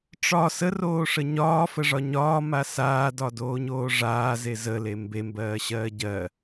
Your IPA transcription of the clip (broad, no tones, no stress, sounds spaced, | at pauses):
ʈ͡ʂ ɒ s ə r oː ʂ ə ɲ ɒː f ə ʐ ɒ ɲ ɒː m a s aː d ɒ d oː ɲ oː ʐ aː z e z ə l e m b e m b ɜː ɕ ɜː ɟ ɜ